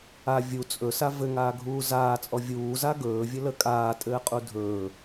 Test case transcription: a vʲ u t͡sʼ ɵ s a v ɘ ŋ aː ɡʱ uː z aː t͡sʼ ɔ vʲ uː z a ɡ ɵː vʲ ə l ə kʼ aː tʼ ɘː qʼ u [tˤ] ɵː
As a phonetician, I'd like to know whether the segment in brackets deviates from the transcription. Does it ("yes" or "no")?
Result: yes